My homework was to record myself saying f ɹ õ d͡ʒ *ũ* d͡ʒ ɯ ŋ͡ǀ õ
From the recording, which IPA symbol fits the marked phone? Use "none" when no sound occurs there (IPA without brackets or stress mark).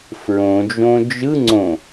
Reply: õ